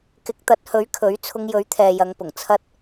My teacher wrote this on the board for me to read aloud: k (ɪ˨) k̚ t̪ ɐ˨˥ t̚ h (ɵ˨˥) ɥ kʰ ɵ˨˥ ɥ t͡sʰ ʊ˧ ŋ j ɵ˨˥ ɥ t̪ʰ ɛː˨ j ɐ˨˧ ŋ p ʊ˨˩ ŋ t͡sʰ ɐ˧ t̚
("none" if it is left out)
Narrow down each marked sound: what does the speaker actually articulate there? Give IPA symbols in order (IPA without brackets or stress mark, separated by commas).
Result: ɪ˨˥, ɵ˨˥